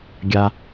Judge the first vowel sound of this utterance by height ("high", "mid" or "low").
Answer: low